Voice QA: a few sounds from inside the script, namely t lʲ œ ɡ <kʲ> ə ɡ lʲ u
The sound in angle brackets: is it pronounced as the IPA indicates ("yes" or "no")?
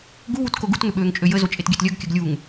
yes